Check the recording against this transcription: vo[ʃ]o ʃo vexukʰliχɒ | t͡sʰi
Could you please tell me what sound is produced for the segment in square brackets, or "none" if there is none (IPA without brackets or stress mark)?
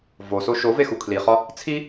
s